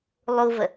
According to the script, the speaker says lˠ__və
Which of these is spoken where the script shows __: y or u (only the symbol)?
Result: u